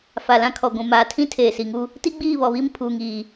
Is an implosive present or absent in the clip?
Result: absent